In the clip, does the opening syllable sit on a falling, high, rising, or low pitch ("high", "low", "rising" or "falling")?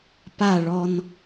falling